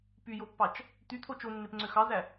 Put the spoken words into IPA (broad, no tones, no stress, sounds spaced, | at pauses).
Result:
p y j o pː ɑ t͡ʃ | t̪ y t̪ʰ o t͡ʃ o nː e p ŋ͡ǀ ø x ɑ z æ